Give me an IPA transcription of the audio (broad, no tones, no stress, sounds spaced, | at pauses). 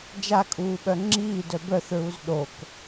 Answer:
d͡ʒ a kʼ uː ɓ œ ŋ͡ǁ iː d œ b œ θ ɹ u z ɗ o k